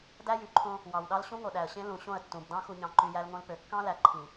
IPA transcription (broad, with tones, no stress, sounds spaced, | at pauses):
d æ˦ j y˨ ǃʰ õ˦ | w ɑ˨ w ɗ ɑ˦ l ɕ ũ˦ ŋ o˨ ɗ æ˨ ə̯ ɕ ẽ˦ l ũ˨ ɕ õ˦˨ ə̯ tː ũ˨ b d ɑ̃˦ x u˨ ɲ ɑ̃˨ ǃ y˨ j æ˦ l ŋ õ˦ l p ø˨ kː ɑ̃˦ l æ˨ ǃʰ ĩ˨